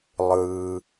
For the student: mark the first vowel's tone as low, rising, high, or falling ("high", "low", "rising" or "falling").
low